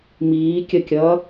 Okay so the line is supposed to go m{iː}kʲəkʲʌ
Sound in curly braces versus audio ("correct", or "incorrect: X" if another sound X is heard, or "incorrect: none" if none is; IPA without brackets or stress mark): correct